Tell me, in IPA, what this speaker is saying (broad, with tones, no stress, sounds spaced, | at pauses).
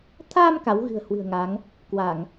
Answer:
t̪ʰ aː˧ m k a˨˦ w ɣ ɨ̤˨˩ ə̯ h w ɨ̤˨˩ ə̯ ŋ a˨˦ ŋ | k w a˧˩˨ ŋ